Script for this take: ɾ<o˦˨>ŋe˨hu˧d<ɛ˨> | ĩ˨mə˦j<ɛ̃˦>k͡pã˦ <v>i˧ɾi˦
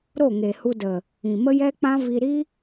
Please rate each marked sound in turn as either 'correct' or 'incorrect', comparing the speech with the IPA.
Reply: correct, incorrect: ə˨, incorrect: ɛ˦, correct

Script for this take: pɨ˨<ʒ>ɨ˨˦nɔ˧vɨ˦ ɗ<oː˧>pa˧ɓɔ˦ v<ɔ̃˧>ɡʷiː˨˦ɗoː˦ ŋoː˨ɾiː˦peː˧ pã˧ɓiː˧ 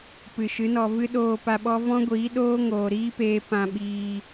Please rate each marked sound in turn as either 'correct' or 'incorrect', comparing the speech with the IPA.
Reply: incorrect: ʃ, correct, incorrect: ɔ̃˦

